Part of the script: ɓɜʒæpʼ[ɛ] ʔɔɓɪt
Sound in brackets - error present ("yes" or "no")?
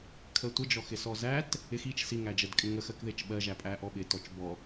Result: yes